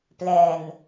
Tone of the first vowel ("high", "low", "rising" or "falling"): low